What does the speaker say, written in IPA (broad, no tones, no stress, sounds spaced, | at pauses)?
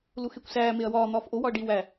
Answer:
l u x e kʷ s æː m e ɐ̯ w ɒː n̪ ɒː f ʔ o w ɒ ɐ̯ ɖ i w æ